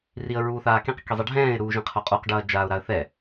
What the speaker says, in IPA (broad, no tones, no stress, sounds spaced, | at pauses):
r i ə̯ ɹ uː θ aː k ẽ q k i zˤ ɛ ɖʱ ɛ̃ː ɪ̯ ɾ uː ʒ ẽ qʰ o qʼ u q ɖ ɐː d͡ʒ aː ʊ̯ ɾ a ə̯ θ ɛ